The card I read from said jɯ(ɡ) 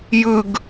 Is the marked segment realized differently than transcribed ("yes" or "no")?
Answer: no